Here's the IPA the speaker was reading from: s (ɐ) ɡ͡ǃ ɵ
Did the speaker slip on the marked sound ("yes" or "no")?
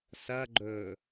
no